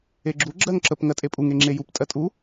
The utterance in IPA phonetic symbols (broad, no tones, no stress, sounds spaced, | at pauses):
e ɡ͡ǁ u ɡ͡ǁ ɜ ŋ ǁ ə p ŋ ɜ tʼ e pʼ u ŋ e ŋ͡ǁ e j u p tʼ ɜ tʼ u